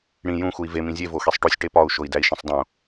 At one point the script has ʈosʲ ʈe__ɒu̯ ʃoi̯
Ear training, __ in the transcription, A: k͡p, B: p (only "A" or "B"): B